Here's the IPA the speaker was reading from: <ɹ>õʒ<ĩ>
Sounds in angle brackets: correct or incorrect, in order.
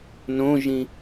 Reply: incorrect, correct

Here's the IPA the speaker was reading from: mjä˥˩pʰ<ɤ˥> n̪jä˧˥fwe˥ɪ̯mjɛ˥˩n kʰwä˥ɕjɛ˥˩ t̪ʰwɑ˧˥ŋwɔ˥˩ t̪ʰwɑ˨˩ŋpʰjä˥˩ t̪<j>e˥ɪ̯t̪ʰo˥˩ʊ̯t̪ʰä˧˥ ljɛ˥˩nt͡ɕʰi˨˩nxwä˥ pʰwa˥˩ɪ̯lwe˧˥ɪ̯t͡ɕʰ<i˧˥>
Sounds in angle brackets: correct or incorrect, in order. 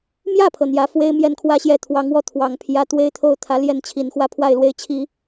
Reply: incorrect, incorrect, incorrect

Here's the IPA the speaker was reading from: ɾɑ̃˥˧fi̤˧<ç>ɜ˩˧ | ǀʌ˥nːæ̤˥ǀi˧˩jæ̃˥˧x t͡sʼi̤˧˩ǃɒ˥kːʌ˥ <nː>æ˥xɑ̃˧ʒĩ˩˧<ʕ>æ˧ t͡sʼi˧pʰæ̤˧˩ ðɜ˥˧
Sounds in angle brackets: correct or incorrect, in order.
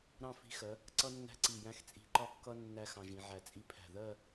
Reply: incorrect, correct, correct

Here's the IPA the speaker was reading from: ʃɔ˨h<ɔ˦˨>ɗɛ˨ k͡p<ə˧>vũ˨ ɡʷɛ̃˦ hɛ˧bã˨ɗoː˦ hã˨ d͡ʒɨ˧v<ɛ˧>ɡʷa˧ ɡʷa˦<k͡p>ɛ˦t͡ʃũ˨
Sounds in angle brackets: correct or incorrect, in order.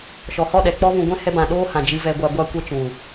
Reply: correct, incorrect, correct, incorrect

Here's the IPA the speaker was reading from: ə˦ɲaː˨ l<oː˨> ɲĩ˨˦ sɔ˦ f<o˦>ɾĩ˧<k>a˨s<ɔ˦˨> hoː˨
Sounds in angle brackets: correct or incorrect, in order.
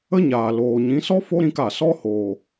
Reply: correct, correct, correct, incorrect

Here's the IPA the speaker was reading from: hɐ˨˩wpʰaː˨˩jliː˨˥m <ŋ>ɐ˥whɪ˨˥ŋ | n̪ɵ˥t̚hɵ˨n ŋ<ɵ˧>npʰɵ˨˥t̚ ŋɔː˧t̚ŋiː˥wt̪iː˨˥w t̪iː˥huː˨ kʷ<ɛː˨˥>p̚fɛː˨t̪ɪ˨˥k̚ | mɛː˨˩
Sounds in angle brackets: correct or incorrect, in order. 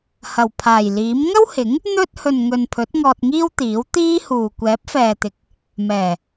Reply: correct, incorrect, correct

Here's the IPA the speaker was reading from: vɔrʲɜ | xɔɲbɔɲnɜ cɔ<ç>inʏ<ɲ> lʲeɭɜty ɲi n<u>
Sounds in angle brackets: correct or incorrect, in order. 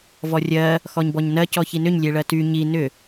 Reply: correct, correct, incorrect

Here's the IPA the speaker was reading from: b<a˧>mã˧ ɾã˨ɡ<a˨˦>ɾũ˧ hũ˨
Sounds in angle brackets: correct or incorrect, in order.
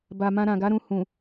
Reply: incorrect, correct

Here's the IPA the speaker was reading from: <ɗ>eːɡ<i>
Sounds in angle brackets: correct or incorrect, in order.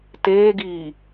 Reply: incorrect, incorrect

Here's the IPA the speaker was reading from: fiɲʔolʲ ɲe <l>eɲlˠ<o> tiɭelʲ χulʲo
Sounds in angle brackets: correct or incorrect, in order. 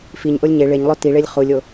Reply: incorrect, correct

